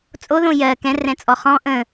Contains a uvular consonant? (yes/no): yes